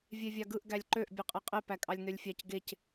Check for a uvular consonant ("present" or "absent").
present